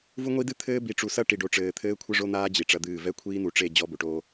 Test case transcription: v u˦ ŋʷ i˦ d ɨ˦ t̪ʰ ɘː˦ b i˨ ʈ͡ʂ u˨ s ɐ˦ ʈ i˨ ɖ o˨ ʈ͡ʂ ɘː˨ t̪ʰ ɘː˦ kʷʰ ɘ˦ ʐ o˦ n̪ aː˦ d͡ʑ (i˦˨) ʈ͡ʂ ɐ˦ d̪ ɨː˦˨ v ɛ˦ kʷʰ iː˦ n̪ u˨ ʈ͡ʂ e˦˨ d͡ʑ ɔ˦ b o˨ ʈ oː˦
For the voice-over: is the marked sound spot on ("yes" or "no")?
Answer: no